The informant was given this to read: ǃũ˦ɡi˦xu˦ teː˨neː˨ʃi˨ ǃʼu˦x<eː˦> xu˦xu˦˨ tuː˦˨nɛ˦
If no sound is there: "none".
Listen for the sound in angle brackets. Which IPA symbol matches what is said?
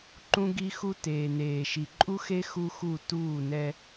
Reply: e˦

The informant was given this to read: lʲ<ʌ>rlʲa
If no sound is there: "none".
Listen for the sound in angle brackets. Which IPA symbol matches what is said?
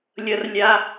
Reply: ʌ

